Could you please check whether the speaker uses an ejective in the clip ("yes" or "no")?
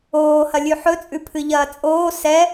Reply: yes